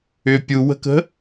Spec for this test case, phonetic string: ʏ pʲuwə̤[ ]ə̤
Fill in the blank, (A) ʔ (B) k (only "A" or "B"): B